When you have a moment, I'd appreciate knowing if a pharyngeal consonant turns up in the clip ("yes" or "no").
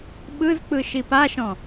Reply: no